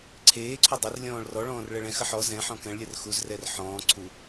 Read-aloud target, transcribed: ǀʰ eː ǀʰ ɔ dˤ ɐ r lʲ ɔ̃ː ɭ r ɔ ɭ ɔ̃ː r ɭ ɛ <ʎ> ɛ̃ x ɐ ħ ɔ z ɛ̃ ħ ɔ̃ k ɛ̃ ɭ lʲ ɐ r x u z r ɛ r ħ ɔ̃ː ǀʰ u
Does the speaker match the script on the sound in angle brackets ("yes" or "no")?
no